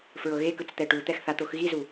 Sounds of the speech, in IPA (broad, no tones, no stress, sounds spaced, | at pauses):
f ɹ ɤ ɣ e k ɯ t͡s t̪ ɛ ʈ u t̪ ɛ x θ a t̪ o x ɣ i z u